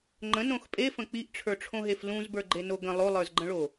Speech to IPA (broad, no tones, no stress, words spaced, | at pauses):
ŋ͡ǃə̃nõx pʼefə̃ k͡piʔʈ͡ʂʰə˞ʈ͡ʂʰõɦef lũzbə˞ɡ͡ǃeno ɡə̃ lˠolˠə˞zɡ͡ǃə̃ɭo